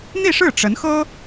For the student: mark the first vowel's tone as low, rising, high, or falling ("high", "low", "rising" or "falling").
falling